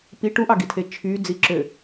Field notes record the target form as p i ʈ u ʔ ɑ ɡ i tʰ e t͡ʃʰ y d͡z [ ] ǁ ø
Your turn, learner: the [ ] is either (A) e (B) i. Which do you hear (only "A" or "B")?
B